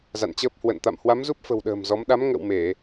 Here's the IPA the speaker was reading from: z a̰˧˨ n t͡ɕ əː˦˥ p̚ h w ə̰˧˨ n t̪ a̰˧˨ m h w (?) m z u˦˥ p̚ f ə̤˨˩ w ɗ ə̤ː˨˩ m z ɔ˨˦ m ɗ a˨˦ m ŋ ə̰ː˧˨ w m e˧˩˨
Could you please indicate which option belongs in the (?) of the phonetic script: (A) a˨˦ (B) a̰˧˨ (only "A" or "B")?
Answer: A